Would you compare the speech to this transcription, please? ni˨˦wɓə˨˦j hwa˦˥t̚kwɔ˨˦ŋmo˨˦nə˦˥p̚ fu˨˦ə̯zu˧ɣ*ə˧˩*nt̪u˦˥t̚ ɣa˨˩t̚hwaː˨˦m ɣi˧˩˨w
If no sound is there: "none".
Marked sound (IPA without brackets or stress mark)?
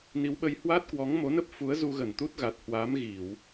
ə˧˩